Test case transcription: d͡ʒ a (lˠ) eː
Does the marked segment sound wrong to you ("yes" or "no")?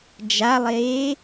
no